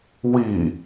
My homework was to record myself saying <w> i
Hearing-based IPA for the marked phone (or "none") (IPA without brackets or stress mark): w